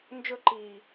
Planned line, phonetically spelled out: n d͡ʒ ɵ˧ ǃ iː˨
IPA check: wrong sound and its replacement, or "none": none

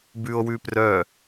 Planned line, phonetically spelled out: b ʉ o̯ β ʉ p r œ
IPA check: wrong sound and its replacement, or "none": β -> w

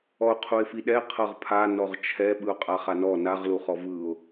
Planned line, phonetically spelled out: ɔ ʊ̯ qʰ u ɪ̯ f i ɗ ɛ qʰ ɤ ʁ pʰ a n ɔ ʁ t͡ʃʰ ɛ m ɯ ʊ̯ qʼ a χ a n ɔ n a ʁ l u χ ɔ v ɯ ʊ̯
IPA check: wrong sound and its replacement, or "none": m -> ɓ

